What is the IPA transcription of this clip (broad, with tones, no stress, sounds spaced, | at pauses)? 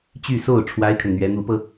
t͡ɕ y˥˧ s o˥˩ ʊ̯ ʈ͡ʂʰ w a˥ ɪ̯ kʰ ə˨ n n̪ ɥ ɛ˧˥ n̪ u˧˥ p ɤ˧